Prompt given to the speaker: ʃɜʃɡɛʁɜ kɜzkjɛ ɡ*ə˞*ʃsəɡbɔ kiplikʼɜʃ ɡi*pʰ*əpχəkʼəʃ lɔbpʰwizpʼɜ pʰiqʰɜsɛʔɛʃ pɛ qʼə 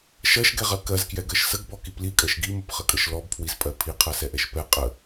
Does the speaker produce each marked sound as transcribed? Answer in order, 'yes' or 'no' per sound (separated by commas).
no, no